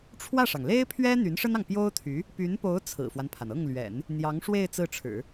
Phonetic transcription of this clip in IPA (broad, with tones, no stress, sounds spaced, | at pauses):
ʈ͡ʂʰ w ä˥˩ ʂ ɑ˩ ŋ l e˥ ɪ̯ pʰ ɥ ɛ˥ n̪ y˧˥ n ʂ ə˥ n ɑ˨ ŋ p j o˥ ʊ̯ t̪ʰ y˧˥ | p y˧˥ n p o˧˥ ʊ̯ t͡sʰ ɹ̩˨˩ f w a˦ n pʰ a˩ n ɤ˥˩ ŋ l ɥ ɛ̰˨˩˦ n | n̪ j ɑ˧˥ ŋ ʂ w e˥˧ ɪ̯ t͡s ɹ̩˥˩ ʈ͡ʂʰ ɻ̩˨˩˦